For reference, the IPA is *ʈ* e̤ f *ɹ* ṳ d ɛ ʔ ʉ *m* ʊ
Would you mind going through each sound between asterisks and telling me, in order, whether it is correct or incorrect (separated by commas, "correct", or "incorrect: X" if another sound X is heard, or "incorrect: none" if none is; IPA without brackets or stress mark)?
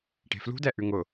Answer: correct, incorrect: l, incorrect: ŋ